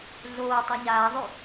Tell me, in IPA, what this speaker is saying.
ɮ oː tˤ a ɲ aː ðˤ ʉ

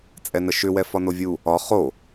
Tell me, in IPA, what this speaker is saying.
t͡sʼ ɛ n ə ʃ ʏ w ɛ f ɒ n o vʲ u | ɒ χ o

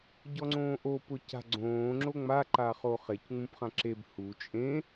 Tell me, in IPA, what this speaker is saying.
ɟ ɔ ŋ͡ǀ õː ʔ o p ʊ c a̤ ɡ͡ǀ õː ŋ͡ǁ o ŋ͡m a ǃ a χ o χ e c ŋ͡m ũ p χ ã ǁ e b h u t͡ʃʼ ẽ

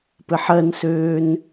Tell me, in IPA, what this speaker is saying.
p ɘ ħ ɜ n s øː n

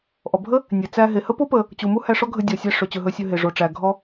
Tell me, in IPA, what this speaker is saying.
ʔ ɔ˩ bʱ ə˥ | nʲ e˩ t͡s æ˧ ɦ e˩ h ə˥ p o˥ p ə˩ | t͡ɕ u˩ m u˥ h æ˧ ʂ ɔ˥ ɡʱ ə˧ dʲ ɔ˩ sʲ æ˧ ʂ ɵ˩ t͡ɕ ɵ˩ ɦ ɵ˧ sʲ ɵ˧ ɦ e˩ ʐ o˩ ʈ͡ʂ æ˩ ɡʱ ɔ˧

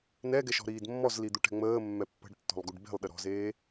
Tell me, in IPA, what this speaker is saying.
n ɛ ɡ ɛ ʃ ɔ̤ ɾ iː d mː ɔ z l i d̪ u ʈ ɛ̤ ŋ͡m əː mː ɛ pː ə̤ ɖ tː ɔ̤ lˠ ɡ u ɖ b e̤ lˠ ɗ ə ɾ ɔ̤ z eː

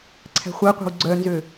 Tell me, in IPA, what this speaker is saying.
ǀʰ æ̤ χʷ æ qʷ æ̤ w ɡ͡ǀ œ n z ø

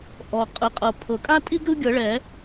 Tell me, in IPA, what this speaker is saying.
ʔ ɔ˩ qʼ ɯ˩ qʼ ɤ˩ pʰ ɤ˩ kʼ a˦ tʼ i˦ ɡ ɾ ɯ˦ ɡʲ ɤ˨˩˦ ɭ ɛ˨˩˦

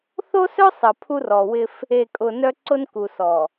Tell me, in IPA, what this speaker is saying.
θ o˦ s œ˦ sˤ ə˨ pʰ u˦ r ɔ˨ w ɪ˦ f | e˨ kʼ ʊ˨ n œ˦ ǀ ʊ˦ n k u˨ s ɔ˨

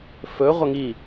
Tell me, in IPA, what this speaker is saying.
f ɵ ʁʷ ɐ ŋ i

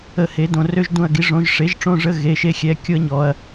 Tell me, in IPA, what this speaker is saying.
ə˦˨ h e˨˥ d õ˦˨ r ø˥ ʒ d ũ˦˨ ɐ̯ ɡ i˨˥ ʐ õ˨˥ ʒ ʂ e˨˥ ʒ ʈ͡ʂ õ˧˥˧ ʐ ə˧˥˧ ɣ e˧˥˧ ʃ e˥ xʲ ɛ˧˥˧ kʲ o˥ ɐ̯ ɲ ɔ˩˧ ɐ̯

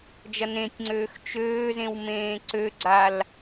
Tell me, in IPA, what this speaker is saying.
d͡ʒ ɐ n ẽ tʲ ŋ͡ǀ øː x t͡ʃ øː z ẽ w m ẽː ǀ ø ɡ͡ǀ a l

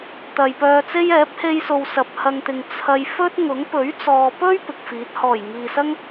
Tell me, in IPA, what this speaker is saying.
t̪ ɐ˨ j p œː˧ t͡s e˥ j ɛː˨˥ p̚ h e˧ j s o˨ w s ɐ˨ p̚ h ɐ˧ ŋ t̪ ɪ˨ ŋ t͡sʰ ɐ˧ j f ɵ˥ t̚ ŋ ʊ˨˥ ŋ p ɵ˨˥ ɥ t͡s ɔː˨ p ɵ˥ ɥ p ɪ˨ k̚ f iː˨˥ t̚ h ɔː˨˩ j ŋ iː˨ s ɐ˥ ŋ

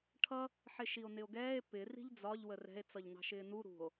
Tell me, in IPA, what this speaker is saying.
ʈʰ ʌ | ħ ɪ ʃ i o̯ n ɪ o̯ ɡ ɛː e̯ p ɪ r i̤ ʎ d͡z ɒ ʎ w ə r ɛ̤ e̯ t͡s ʌ ʎ n ɑ̤ ʃ ɪː n u ɾ ṳ o̯

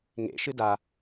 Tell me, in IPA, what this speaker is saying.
ŋ ḛ ʃ ɨ d a

